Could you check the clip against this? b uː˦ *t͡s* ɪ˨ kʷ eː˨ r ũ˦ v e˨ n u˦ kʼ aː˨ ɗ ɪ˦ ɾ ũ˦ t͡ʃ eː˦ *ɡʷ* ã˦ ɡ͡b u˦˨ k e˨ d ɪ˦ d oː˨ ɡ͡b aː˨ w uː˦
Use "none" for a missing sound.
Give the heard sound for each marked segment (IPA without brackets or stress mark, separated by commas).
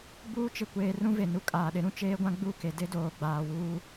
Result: t͡ʃ, ɡʷ